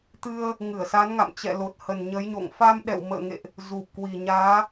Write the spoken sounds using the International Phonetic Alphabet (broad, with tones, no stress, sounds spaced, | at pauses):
t̪ ɨ˧ ə̯ | ŋ ɨ˧˩ ə̯ s a˨˦ n ŋ a̰˧˨ m t͡ɕ ɛ̰˧˨ l o˨˩ t̚ h ə˨˩ n ɲ ə˨˦ j ɲ o̰˧˨ ŋ f a˧ m ɗ ɛ̰˧˨ w m ə̰ː˧˨ ŋ ḛ˧˨ ʔ | z u˨˩ p̚ k w i˨˩ ɲ aː˨˦